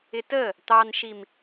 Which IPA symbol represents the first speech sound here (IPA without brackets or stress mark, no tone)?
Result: ɪ